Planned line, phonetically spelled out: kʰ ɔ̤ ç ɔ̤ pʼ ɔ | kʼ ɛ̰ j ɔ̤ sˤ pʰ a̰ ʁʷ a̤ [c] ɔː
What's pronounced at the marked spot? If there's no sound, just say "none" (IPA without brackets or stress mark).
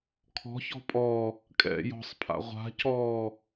c